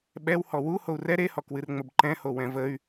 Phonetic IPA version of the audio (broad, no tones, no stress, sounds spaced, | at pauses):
ɓ ɛ w h ɔ w u h o u̯ r ɛ ɾ e h ɔ k w ɨ r ŋ͡m ə b ǃ ɛ̃ h o w ɛ̃ v ə y̯